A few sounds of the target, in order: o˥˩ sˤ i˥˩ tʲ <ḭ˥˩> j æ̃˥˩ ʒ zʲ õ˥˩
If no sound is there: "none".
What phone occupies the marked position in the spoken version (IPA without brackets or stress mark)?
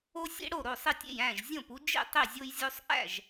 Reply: ḛ˥˩